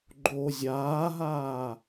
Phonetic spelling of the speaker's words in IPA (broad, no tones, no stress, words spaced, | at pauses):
ɡ͡ǃo zʲaːɦaː